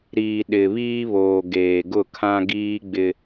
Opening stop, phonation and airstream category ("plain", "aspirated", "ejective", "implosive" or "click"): implosive